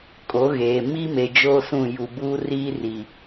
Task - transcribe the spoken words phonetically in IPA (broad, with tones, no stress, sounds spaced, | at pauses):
kʼ o˨˦ ɣ eː˨ m i˦ m e˨ d͡ʒ oː˦ s ũ˦˨ j u˨ b uː˦ r iː˦ r i˨